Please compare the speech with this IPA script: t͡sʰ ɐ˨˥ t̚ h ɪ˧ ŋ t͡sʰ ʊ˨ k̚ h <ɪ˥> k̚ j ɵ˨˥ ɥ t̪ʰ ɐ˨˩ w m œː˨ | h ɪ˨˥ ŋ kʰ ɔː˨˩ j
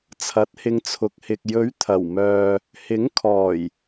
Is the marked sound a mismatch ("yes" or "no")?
yes